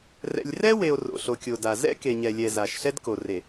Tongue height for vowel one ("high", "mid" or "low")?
mid